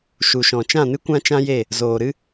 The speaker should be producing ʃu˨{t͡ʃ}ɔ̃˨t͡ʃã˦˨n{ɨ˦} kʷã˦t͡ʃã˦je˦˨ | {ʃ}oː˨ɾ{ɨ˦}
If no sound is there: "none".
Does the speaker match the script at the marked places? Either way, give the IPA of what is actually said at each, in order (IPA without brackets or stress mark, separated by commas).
ʃ, ɨ˦, z, ɨ˦